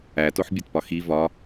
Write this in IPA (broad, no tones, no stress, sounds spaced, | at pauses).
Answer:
æ t o ħ bʲ o t p ɒ x i v ɒ